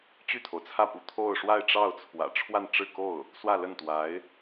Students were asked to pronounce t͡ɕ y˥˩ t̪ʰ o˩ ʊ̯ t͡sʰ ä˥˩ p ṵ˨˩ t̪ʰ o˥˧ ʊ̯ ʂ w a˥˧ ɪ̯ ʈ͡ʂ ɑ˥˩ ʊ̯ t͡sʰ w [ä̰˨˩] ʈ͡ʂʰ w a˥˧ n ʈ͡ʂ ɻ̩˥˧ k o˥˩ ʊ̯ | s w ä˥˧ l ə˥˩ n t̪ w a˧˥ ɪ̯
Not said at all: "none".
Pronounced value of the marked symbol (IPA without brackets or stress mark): ä̰˨˩